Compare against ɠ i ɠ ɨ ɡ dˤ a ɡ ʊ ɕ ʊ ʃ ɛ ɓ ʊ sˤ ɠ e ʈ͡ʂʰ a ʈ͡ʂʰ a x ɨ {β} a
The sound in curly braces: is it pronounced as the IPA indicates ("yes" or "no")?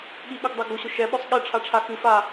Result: no